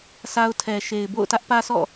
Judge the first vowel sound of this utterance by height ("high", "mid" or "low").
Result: low